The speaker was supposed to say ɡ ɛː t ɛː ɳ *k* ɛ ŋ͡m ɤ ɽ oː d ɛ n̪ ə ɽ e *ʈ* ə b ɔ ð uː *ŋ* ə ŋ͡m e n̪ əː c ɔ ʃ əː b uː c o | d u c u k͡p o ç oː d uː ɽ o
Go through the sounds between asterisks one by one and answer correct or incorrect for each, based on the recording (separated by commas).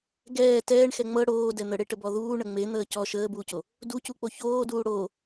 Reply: incorrect, correct, incorrect